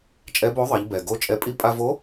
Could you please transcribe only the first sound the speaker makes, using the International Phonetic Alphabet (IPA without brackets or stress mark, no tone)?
t͡ʃʼ